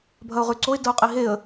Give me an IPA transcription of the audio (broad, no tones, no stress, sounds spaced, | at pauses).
bʱ ɐ ʊ̯ ʁ ʉ ǀ o ɪ̯ d ɐ ʊ̯ qʼ i ɦ e ə̯